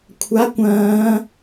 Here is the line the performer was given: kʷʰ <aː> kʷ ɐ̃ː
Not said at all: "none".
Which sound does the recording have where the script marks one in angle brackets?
a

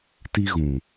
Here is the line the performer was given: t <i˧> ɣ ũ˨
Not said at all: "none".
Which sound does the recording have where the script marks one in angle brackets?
i˧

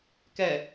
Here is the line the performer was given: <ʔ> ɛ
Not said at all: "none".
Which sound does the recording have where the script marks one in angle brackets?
k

